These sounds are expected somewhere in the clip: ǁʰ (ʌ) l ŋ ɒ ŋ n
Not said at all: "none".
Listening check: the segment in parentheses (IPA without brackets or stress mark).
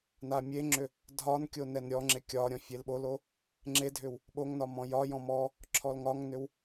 ɔ